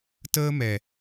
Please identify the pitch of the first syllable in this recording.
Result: high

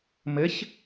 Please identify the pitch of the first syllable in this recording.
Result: rising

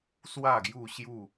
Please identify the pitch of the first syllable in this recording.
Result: falling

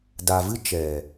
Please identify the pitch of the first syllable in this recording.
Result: low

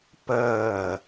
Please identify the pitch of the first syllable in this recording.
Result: falling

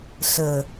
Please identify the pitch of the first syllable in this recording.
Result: low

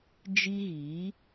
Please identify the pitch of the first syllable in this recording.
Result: high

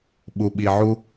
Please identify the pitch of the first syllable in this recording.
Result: low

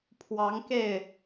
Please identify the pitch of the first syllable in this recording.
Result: rising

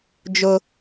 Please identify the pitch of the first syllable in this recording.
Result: high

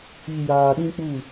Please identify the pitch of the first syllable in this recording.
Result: low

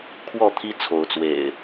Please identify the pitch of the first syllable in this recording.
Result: falling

